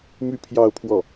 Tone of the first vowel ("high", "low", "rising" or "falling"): high